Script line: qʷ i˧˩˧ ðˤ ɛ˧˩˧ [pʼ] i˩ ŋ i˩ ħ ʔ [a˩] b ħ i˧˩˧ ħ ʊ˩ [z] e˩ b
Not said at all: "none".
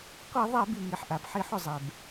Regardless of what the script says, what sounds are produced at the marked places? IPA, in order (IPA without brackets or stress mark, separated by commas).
b, a˩, zˤ